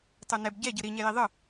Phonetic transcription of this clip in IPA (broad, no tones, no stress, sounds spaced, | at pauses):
tˤ u n ɛ b ɟ ɛ ɟ ɯ ɾ i ɲ ɛ j i ðˤ ɯ